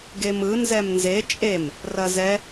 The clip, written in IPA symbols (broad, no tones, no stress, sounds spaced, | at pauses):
ɡ e m ɯ n z ɛ m n z e t͡ʃʼ e m | r ɐ z ɛ